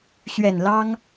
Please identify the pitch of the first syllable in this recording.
low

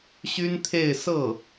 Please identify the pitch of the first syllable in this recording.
high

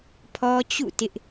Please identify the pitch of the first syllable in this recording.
high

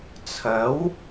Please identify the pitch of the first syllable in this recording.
rising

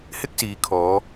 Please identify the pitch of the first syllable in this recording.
high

